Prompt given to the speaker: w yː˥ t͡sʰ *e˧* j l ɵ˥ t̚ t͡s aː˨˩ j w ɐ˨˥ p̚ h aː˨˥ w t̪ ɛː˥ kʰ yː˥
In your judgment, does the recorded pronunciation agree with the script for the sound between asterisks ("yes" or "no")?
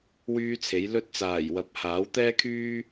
no